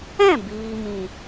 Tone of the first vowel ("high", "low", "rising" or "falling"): falling